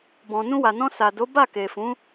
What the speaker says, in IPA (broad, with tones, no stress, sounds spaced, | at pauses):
b ɔ̃˨ n ũ˧ w a˨ n ɔ̃˧ s a˨ d o˨˦ b a˦˨ k e˨ f ũ˨˦